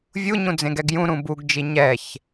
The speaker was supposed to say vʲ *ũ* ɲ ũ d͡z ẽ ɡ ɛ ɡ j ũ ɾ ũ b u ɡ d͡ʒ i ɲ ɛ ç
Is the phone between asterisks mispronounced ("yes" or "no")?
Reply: yes